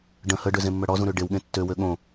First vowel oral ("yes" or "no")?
no